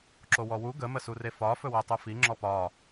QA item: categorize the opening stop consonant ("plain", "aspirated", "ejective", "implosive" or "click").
click